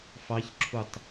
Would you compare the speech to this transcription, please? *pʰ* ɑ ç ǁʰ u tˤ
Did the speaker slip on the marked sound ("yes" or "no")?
yes